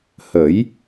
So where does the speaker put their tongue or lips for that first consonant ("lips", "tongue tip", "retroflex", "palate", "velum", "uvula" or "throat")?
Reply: throat